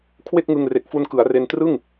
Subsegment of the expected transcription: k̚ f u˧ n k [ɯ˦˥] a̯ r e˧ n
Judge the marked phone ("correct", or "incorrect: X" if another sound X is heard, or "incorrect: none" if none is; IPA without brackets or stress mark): incorrect: ɯ˩˦